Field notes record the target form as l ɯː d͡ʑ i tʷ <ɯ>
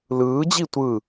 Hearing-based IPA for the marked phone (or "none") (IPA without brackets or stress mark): ɯ